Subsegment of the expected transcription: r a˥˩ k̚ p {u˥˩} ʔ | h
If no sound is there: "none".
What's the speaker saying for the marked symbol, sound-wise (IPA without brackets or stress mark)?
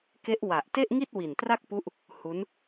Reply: u˦˥